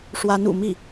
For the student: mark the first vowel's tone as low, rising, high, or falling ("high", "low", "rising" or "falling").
rising